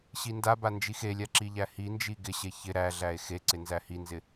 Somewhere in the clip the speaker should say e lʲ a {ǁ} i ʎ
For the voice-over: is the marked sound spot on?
yes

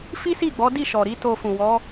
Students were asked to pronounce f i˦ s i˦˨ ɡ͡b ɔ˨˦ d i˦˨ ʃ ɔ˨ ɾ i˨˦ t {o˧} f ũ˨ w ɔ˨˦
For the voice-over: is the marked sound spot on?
yes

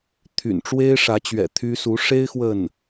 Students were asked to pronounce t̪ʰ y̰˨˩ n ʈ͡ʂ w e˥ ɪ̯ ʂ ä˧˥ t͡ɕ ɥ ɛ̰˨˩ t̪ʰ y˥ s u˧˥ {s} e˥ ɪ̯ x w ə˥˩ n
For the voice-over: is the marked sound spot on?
no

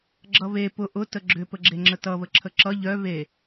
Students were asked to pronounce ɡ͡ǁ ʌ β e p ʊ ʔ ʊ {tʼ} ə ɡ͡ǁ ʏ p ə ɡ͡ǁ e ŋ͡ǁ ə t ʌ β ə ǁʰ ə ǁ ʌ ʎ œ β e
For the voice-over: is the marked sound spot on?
no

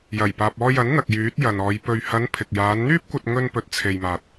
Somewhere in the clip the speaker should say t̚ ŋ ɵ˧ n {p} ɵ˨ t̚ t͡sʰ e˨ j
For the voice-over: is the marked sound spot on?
yes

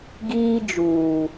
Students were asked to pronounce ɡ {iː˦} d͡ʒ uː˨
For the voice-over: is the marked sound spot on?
yes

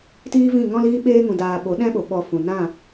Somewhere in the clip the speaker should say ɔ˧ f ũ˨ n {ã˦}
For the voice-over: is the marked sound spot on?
no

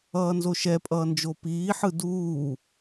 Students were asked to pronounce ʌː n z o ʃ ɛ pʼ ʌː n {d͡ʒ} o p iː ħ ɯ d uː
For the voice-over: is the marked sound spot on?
yes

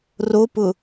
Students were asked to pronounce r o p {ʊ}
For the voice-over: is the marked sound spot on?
yes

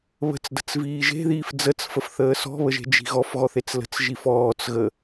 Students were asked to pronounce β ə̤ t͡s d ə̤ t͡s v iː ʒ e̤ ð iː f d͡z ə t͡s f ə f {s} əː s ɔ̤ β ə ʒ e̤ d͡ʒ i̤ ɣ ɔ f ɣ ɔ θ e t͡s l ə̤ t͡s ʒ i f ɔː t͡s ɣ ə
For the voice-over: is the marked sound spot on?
no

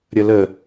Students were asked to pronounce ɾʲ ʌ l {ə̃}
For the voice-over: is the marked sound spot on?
no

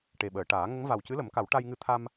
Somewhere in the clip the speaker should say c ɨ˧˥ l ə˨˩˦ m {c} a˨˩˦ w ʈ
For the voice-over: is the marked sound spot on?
no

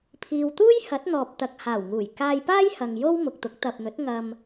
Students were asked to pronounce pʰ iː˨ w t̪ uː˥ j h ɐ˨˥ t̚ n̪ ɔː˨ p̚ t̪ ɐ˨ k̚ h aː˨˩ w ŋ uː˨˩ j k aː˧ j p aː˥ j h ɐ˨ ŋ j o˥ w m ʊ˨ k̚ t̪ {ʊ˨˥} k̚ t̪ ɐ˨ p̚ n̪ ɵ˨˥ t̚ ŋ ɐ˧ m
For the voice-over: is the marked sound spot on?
yes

